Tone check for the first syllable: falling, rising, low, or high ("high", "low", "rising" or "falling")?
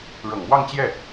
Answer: low